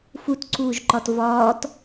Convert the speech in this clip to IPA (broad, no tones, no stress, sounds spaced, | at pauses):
f u t ǀ uː ʒ ǃ ɒ t v ɒː t